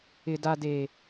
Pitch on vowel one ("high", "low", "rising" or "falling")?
low